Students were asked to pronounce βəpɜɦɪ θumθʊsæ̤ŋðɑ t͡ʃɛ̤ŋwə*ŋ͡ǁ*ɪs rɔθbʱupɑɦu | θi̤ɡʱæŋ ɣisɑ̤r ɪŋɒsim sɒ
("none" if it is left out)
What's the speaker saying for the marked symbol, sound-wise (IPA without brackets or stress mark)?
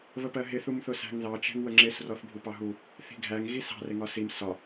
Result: ŋ͡ǁ